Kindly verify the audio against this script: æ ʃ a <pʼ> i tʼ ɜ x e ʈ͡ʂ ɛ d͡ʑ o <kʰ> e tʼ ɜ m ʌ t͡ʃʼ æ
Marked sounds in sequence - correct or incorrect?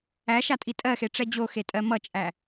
incorrect: tʼ, incorrect: x

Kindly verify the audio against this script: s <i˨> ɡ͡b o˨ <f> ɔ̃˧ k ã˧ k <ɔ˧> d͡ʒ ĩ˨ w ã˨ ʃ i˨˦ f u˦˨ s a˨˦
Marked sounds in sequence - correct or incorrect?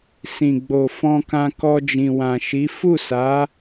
incorrect: ĩ˨, correct, correct

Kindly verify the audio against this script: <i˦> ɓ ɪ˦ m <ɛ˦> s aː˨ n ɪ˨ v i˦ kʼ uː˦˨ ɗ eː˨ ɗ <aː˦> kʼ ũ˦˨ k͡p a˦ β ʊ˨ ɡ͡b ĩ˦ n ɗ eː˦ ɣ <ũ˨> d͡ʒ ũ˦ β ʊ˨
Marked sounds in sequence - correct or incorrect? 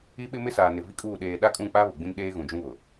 correct, incorrect: ɪ˦, incorrect: a˦, correct

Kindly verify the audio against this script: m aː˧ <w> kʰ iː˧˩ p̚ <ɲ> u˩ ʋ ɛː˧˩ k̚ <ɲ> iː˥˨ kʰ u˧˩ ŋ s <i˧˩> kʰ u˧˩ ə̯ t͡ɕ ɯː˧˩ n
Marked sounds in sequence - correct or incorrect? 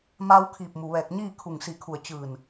correct, incorrect: m, correct, correct

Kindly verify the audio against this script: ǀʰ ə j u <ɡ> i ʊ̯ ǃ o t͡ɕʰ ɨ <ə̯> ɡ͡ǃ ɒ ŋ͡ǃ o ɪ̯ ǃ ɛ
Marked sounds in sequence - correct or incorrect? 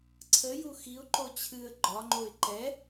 incorrect: x, correct

